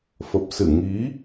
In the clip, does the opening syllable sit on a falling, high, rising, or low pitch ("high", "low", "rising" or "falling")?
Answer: low